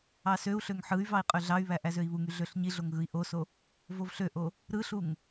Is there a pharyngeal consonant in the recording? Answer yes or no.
yes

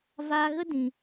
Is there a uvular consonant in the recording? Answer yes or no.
no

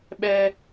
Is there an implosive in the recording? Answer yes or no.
yes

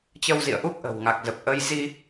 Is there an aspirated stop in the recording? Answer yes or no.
no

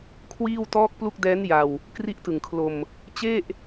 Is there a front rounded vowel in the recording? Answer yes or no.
no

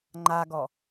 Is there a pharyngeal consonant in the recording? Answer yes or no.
no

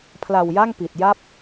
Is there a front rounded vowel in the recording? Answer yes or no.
no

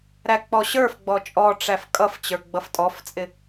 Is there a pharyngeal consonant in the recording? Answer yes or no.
no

